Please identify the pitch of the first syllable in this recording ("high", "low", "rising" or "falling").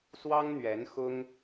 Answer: high